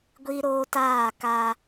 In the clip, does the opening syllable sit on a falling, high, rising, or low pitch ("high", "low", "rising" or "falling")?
high